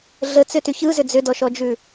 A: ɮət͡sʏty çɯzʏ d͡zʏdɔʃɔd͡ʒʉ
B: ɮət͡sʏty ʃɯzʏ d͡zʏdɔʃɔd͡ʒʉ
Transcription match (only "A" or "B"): A